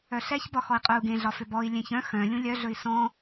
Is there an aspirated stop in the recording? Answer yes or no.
no